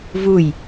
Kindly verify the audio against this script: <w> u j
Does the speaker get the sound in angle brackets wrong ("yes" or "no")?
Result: yes